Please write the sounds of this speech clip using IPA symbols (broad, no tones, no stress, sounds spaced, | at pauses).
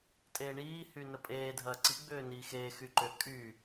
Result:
tʼ eː ɳ iː h y n ə pʼ eː dʱ ɐː ǀ i ɡ͡b ʏː n iː x eː x y ǃ ʏ kʼ y